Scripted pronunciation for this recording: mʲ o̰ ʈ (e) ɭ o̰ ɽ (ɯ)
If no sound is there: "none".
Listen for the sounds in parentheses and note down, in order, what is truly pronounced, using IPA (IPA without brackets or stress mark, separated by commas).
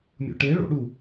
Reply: e, u